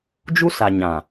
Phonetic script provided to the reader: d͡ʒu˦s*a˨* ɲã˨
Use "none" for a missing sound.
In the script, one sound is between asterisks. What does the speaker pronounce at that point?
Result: a˨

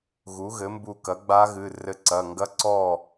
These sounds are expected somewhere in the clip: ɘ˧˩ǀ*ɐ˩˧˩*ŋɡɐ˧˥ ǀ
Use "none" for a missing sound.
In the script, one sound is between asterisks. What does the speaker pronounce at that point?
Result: ɐ˩˧˩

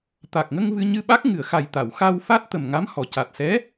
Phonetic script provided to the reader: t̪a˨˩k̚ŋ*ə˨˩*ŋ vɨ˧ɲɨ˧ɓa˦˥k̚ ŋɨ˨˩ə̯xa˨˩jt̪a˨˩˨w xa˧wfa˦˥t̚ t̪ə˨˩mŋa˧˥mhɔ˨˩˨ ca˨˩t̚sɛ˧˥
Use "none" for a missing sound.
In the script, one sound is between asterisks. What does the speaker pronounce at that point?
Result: ə˧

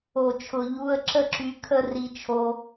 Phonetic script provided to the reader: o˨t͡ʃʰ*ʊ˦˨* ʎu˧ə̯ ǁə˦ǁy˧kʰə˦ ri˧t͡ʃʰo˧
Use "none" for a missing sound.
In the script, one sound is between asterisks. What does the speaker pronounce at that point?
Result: ʊ˨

